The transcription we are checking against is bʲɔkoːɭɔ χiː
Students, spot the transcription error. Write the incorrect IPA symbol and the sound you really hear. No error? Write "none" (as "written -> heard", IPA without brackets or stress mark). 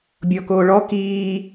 χ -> k